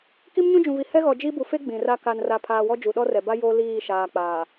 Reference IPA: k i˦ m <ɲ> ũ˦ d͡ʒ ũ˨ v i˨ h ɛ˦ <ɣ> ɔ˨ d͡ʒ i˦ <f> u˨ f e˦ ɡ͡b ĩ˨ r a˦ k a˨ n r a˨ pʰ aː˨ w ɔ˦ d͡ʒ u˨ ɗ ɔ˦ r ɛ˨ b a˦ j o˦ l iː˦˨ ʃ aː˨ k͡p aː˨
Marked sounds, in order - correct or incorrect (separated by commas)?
correct, correct, incorrect